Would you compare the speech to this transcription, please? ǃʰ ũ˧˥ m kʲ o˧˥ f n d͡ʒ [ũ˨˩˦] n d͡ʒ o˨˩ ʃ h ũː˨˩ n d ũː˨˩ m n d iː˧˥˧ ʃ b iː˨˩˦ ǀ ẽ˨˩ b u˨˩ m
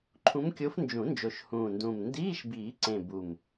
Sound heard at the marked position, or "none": ũ˨˩˦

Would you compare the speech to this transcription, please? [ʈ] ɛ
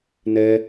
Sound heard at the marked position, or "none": n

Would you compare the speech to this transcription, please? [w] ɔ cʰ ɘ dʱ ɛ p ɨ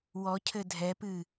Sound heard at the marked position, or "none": w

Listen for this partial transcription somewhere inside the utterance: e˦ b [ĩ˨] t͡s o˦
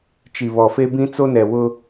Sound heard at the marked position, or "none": ĩ˦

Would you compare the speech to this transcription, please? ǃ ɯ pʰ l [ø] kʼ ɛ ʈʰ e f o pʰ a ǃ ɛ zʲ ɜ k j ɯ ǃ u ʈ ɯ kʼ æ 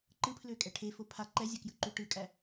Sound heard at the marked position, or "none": ø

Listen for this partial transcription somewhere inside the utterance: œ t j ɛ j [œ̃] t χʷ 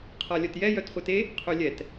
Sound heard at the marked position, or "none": œ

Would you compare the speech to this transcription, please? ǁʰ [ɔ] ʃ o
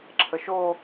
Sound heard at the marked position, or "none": ə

